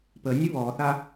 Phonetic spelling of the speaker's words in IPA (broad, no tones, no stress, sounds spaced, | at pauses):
p ə nʲ ʊ β ɔ θ a